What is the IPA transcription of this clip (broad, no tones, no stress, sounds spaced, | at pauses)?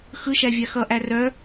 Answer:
x ɯ ʃ æ vʲ a x ʌ ʔ æ r œ